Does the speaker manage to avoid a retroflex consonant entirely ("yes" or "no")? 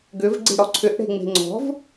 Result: no